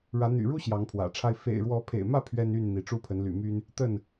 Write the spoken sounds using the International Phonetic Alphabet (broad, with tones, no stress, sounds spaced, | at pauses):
ɻ ä˨˦ n̪ y̰˨˩ ɻ u˦ ɕ j ɑ˨˦ ŋ pʰ w ä̰˨˩ ʈ͡ʂʰ a˦ ɪ̯ f ḛ˨˩ ɪ̯ ɻ w ɔ˨˦ pʰ ḛ˨˩ ɪ̯ m ä˥˨ pʰ ɥ ɛ˦ n y˥˨ n n̪ i˨˦ ʈ͡ʂ u˦ pʰ ə˨˦ n l y̰˨˩ m y˦ n | t̪ ə˥˨ n